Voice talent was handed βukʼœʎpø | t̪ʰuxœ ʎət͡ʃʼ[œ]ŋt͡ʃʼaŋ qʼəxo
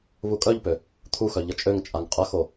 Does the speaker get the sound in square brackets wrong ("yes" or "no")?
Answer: yes